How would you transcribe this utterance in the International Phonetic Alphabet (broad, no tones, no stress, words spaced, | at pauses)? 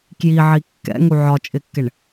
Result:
kjiʕi kːɛ̰ŋu ʕɒt͡ʃʼɪkːɪɳ